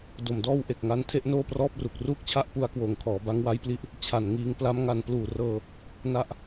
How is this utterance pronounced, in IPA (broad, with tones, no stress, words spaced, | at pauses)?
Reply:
do˨˩mdɔː˥˩wʔe˨˩k̚ŋa˦˥n tʰe˦˥ʔnoː˥˩prɔː˥˩p̚ru˨˩k̚ ruː˥˩k̚t͡ɕʰa˥˩ʔpu˧a̯kwoː˨˩ŋ kʰɔː˩˦ba˦˥ŋwa˦˥jpli˦˥ʔ | t͡ɕʰa˨˩n ŋiː˧ŋpla˦˥mŋa˧n pluː˨˩rɤː˧ | na˦˥ʔ